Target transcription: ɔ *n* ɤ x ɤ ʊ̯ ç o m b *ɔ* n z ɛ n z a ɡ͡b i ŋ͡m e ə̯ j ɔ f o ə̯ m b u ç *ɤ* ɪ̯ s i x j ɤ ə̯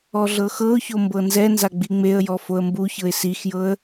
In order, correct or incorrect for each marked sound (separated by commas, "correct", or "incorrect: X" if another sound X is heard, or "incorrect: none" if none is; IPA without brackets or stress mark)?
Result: incorrect: ɮ, incorrect: ɤ, correct